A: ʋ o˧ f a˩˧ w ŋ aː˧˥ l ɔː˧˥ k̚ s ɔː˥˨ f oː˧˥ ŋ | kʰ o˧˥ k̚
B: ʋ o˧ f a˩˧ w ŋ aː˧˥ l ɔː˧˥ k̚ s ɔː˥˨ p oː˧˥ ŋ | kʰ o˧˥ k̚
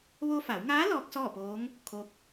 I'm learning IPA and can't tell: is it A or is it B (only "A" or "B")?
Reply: B